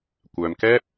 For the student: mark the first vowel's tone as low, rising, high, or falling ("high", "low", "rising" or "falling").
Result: low